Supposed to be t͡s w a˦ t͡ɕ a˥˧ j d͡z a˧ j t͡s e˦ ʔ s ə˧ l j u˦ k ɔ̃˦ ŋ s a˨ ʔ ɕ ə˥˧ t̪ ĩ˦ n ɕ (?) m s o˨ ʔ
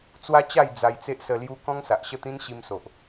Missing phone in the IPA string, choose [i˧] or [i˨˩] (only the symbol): i˧